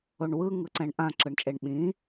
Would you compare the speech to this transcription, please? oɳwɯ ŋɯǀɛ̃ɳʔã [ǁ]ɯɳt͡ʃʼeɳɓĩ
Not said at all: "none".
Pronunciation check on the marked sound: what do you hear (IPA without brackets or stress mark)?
ǁ